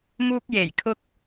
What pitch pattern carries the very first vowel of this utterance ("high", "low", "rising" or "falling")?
high